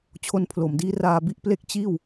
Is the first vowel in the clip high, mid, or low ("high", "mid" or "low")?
mid